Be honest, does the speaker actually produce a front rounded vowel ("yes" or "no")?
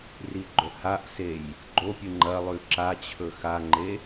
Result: no